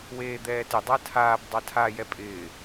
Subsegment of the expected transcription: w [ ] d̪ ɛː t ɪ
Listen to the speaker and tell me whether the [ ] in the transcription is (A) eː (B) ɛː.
A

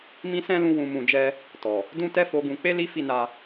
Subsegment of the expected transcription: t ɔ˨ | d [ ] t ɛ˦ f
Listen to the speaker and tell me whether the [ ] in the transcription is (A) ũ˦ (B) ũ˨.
A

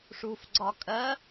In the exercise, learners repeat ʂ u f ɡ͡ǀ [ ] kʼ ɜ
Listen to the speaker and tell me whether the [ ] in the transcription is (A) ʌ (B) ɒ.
B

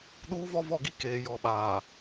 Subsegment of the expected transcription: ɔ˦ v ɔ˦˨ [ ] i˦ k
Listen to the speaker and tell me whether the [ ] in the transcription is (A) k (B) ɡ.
B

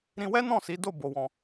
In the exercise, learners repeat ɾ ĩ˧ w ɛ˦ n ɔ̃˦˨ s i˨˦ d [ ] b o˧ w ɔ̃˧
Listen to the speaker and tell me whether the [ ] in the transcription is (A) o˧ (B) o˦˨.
B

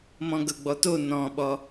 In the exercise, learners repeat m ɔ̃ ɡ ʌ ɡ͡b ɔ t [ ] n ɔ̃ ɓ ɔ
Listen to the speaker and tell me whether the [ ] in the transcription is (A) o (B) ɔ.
A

